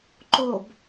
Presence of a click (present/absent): present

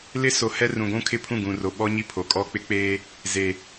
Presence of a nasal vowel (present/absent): present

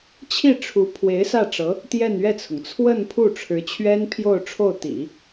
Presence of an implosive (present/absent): absent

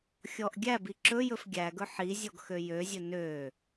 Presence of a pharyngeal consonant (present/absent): present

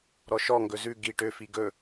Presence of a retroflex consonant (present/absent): present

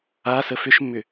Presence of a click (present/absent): absent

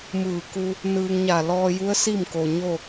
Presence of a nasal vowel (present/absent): absent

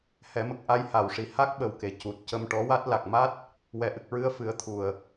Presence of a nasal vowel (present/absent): absent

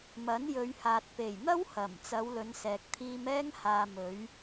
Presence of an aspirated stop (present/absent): present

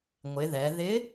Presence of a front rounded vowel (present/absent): absent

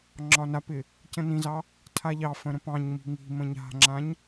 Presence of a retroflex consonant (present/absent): absent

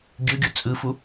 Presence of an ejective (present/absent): present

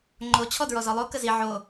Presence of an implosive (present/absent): absent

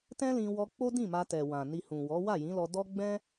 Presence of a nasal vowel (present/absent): present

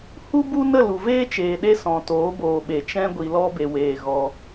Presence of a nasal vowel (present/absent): present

